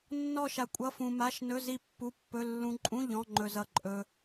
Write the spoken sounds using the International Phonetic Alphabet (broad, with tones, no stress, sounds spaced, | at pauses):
nː ɔ˥˧ ʃ a˧ kʷʼ ʌ˧˥˧ f ũ˧ m a˧˥˧ ʃ n ɵ˧˥˧ z i˥˧ pː u˧˥˧ pː ɵ˧˥˧ lː ũ˧ ǃʼ ũ˧˥˧ ʎ ɔ̃˧˥˧ ŋ͡ǃ ɵ˧ z ʌ˧ ǃʼ ɵ˧